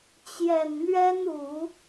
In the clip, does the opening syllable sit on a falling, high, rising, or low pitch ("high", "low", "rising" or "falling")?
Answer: low